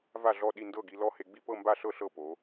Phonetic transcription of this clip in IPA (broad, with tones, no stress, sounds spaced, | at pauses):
v a˥˩ ɮ ɔ˥˩ ɗ i˥˩ n d ɤ˥˩ ɡ i˧ l ɔ˥˩ h e˧ ɡ͡b i˥˩ p ɤ˥˩ m b a˥˩ ɬ ɤ˥˩ ɬ ɤ˥˩ p o˩˧